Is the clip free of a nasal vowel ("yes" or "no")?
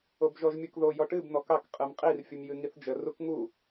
yes